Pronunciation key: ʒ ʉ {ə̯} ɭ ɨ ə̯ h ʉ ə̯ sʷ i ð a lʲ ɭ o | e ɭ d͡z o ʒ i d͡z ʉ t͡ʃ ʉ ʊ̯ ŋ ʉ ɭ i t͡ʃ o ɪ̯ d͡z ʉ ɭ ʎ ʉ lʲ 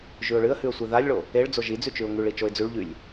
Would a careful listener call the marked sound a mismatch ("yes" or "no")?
yes